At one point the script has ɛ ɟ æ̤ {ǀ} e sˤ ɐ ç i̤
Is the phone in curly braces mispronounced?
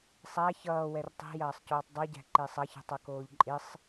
yes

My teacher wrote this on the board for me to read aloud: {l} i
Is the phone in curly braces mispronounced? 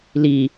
no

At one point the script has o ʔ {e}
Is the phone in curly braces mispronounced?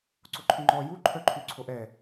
yes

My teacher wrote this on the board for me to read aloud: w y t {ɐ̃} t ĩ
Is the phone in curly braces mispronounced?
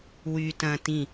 no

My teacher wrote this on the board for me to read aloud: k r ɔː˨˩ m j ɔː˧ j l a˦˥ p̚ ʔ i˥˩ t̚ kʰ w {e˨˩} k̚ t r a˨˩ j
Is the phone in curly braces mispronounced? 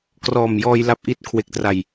no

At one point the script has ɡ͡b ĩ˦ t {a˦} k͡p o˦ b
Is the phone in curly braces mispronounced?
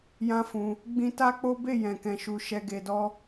no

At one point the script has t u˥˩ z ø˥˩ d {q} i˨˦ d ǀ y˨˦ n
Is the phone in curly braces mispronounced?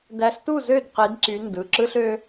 no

